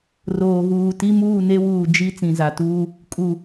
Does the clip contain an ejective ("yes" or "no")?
yes